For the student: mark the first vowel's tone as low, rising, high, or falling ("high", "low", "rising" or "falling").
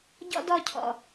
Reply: high